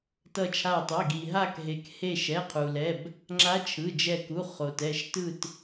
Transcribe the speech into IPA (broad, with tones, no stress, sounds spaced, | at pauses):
t ʌ˧˩ t͡ʃʰ a˧˩ tˤ i˩˧˩ ɡ i˩ ɦ a˧˩ k ɦ e˩ k h e˧˩ ʃ ɛ˩˧˩ qʰ u˩ l ɛ˩˧˩ b | ŋ͡ǁ a˧˥ t͡ʃʰ ɯ˩˧˩ d͡ʒ ɛ˧˩ k u˩˧˩ χ o˩ t ɛ˧˩ ʃ t ɯ˧˩ t